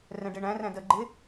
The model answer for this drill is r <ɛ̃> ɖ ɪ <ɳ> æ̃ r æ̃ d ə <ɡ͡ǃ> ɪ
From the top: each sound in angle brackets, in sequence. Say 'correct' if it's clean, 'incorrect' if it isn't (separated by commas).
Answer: correct, correct, correct